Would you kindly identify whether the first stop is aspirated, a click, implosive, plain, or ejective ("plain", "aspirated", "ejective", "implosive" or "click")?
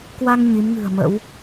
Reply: plain